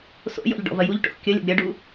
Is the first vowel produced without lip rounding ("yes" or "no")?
no